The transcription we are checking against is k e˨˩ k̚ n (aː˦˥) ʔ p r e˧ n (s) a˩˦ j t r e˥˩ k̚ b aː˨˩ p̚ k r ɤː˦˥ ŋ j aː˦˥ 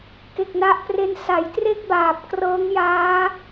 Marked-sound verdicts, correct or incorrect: incorrect: a˦˥, correct

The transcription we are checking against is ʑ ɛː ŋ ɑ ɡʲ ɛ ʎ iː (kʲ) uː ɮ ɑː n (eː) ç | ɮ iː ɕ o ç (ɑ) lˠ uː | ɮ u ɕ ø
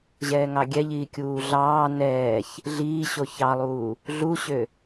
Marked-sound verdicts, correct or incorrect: correct, incorrect: ɛː, correct

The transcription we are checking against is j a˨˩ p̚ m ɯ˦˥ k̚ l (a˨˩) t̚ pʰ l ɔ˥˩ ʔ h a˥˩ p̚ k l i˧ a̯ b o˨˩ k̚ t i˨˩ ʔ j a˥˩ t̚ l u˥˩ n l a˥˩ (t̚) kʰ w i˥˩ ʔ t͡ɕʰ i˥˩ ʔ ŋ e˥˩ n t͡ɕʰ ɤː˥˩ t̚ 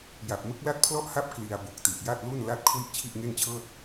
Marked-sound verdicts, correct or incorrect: incorrect: a˥˩, correct

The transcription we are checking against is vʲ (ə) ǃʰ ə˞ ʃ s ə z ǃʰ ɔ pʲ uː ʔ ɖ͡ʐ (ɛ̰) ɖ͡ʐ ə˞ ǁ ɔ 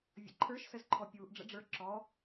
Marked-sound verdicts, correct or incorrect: incorrect: ə̰, incorrect: ə̰

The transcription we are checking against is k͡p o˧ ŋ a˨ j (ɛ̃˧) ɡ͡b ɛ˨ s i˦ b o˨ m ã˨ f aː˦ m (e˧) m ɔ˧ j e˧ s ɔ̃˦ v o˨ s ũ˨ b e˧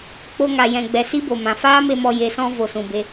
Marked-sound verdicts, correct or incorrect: incorrect: ɛ̃˨, correct

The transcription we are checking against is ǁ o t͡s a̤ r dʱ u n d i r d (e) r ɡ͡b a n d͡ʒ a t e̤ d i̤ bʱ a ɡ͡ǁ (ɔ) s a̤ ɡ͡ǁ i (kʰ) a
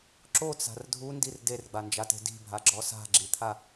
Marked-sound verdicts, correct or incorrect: correct, correct, incorrect: t̪ʰ

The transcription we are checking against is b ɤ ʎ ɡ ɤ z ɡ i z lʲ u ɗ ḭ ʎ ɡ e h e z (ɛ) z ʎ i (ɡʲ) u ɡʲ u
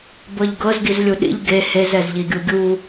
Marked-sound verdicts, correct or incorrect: correct, correct

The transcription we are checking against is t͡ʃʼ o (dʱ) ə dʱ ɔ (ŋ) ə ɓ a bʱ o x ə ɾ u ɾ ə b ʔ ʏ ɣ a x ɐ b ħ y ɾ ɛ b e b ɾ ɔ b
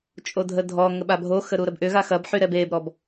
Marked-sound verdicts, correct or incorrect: correct, correct

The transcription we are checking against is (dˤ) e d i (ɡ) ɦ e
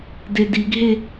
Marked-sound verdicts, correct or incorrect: incorrect: d, correct

